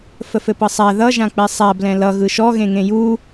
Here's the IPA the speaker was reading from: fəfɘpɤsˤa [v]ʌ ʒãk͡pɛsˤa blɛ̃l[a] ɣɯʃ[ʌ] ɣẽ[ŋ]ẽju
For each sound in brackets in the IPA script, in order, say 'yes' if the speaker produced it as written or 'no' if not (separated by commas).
no, no, no, yes